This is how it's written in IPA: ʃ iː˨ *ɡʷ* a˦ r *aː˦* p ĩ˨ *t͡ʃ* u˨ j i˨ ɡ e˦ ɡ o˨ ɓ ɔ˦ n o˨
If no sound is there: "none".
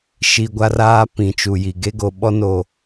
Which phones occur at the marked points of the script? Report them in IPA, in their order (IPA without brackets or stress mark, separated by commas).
ɡʷ, aː˦, t͡ʃ